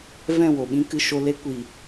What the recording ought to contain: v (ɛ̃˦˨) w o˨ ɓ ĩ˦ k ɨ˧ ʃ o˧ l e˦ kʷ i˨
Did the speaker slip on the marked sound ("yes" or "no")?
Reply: no